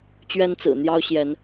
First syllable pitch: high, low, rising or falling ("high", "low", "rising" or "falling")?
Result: high